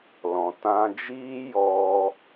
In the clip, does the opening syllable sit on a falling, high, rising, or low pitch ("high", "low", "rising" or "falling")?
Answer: low